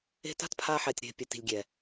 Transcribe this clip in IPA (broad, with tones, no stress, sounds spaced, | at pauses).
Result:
e̤˦ t a̤˦ t pʰ a˧ ħ ɛ˨ tʲ ɾ e̤˨ pʲ ɛ˨ t i̤˨ lʲ ɡʲ ɛ˨